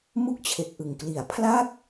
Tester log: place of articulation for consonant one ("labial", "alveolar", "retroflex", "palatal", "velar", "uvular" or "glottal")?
labial